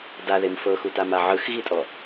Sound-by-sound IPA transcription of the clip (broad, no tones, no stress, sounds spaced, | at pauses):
d a ð e m f ɤ x u t a m a ʕ ɯ x ɣ i tʼ ɔ